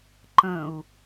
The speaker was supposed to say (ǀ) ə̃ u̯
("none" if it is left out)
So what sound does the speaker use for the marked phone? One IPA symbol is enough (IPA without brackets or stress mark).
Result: ǃ